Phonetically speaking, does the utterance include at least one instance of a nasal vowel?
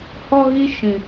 yes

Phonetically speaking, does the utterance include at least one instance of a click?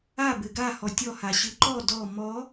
yes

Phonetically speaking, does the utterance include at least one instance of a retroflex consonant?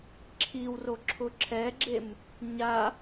no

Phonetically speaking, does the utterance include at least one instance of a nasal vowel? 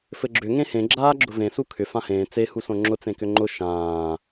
yes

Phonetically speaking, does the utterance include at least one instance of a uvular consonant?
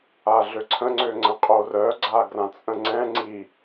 yes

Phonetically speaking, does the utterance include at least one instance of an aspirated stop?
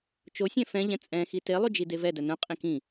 no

